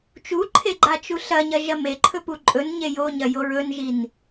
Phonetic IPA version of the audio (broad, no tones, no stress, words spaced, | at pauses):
t͡ʃuǃʰe ɡ͡ǃat͡ʃuɬɐɲɐ ʒɐmeǃʰɵ puǃʼɵnɲe joɲɐ joɹɵnʒin